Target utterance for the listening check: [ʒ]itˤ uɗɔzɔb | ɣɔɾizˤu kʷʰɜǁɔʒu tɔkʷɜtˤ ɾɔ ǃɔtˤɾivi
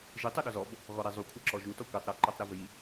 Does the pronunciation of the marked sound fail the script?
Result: no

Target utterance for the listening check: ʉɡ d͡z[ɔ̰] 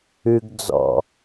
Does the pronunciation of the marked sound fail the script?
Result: no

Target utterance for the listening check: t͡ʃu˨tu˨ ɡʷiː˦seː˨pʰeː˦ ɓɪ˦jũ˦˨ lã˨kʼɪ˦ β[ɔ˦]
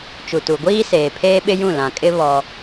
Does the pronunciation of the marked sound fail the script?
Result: no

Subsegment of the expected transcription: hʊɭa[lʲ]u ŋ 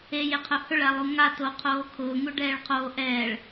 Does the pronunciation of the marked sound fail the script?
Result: yes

